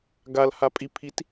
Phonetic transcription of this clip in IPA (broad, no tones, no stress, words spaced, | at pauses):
ɡal hapʼipʰit